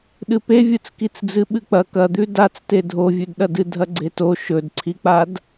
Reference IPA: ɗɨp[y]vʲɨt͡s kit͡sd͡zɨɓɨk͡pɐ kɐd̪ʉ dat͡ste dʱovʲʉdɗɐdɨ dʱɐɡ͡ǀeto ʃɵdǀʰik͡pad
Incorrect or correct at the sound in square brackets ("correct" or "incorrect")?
incorrect